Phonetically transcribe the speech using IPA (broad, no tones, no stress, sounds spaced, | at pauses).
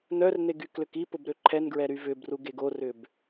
n œ r n e ɡ y k l ʏ k i p ʊ b ɾ ø ǃʰ ɛ n ɡ ɹ ɛ ɾ y v ʏ b r u ɡ e ɡ o r ʏ b